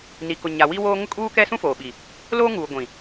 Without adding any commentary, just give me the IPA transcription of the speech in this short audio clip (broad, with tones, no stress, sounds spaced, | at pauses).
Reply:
n i˨ k ʊ˨ ɲ a˨ w i˦ w oː˦ ŋ ʊ˦ kʼ uː˦ k ɛ˦ s ũ˦ f oː˨ ɓ i˨ | l oː˦ ŋ uː˨ ɡʷ ĩ˨